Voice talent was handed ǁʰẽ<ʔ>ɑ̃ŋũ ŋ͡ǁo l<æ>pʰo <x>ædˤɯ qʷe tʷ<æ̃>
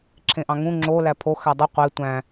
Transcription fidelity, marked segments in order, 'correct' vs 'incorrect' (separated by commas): correct, correct, correct, correct